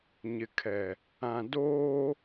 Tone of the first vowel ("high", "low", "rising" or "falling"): low